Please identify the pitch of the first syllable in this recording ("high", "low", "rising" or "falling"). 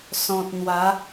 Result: low